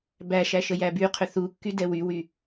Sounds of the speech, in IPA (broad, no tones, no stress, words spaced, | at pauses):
bæʃæ ʃəjæbyqʰʏ θukːy dɛwywy